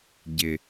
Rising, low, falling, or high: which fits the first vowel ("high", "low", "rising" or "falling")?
low